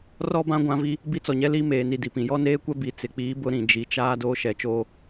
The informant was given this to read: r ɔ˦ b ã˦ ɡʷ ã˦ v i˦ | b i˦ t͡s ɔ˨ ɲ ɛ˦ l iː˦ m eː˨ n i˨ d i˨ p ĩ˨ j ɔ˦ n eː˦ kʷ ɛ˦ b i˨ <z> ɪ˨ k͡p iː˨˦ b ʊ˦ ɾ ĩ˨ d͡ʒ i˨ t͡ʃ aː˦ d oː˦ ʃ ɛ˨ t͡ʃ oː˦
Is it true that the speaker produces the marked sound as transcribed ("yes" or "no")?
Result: no